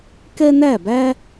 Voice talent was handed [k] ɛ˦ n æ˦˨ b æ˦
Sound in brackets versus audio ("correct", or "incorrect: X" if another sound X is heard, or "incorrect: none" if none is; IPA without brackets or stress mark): correct